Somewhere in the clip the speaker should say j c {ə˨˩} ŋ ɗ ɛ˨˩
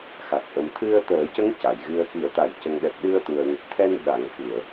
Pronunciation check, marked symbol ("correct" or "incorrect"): correct